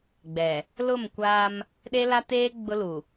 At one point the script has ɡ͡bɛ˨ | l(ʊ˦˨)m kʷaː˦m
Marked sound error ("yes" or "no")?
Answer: no